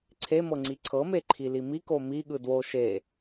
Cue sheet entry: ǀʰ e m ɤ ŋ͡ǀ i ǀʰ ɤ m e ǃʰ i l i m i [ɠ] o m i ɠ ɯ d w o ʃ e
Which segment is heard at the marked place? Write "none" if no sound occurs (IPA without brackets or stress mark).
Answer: k